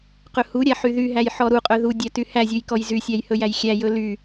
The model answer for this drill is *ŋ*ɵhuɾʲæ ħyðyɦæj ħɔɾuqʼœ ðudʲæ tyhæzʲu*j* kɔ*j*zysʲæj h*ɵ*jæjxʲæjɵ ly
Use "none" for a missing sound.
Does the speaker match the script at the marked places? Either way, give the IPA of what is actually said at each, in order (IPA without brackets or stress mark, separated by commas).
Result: q, j, j, ɵ